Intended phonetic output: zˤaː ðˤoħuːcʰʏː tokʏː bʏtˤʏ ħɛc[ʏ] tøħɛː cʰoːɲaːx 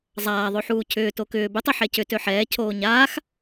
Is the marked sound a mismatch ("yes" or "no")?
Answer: no